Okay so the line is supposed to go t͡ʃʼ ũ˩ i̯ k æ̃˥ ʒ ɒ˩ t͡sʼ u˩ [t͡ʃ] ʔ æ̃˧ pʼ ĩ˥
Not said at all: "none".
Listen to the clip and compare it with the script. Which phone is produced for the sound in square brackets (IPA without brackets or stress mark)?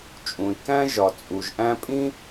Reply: ʒ